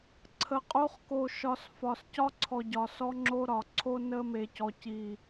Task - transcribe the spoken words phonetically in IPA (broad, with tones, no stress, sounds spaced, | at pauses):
ǀʰ ə˨ qʼ o˦ χ k o˨ ʃ ɒ˨ s f ɒ˨ s c ɒ˦ ǀʰ ɔ˨ ɟ ɒ˨ s ɔ˦ ŋ͡ǁ o˦ ɾ ɒ˨ ǀʰ o˦ n ə˦ m e˨ c ɔ˨ c i˨